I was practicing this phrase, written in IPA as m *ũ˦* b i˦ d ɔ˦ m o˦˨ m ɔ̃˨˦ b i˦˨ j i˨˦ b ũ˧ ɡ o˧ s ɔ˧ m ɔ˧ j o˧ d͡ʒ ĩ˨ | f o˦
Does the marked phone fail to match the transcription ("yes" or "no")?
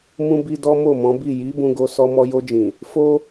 no